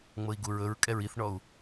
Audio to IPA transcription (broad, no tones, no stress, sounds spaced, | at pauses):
ŋ͡m ɤ i̯ ɡ u ɹ ɵ ɹ kʼ ɛ ɹ i θ ɳ ɔ u̯